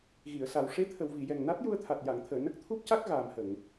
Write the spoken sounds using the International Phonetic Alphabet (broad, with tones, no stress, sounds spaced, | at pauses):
ɣ i˨˩˨ ə̯ s a˨˩ w ʂ e˧˥ t̪ʰ ə˨˩˨ w v i˨˩˨ j ɛ˨˩ ŋ n a˦˥ t̚ j u˧ ə̯ t̪ʰ a˨˩ t̚ j a˨˩˨ ŋ t̪ʰ əː˨˩˨ n ə˦˥ k̚ t̪ʰ u˦˥ p̚ c a˦˥ k̚ ɣ aː˨˩ m h ə˨˩˨ ŋ